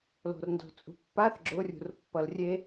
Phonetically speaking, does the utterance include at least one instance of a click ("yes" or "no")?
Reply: yes